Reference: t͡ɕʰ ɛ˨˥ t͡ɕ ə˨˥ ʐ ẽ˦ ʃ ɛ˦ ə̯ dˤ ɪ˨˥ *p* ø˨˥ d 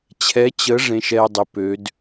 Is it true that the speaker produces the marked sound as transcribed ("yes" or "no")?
yes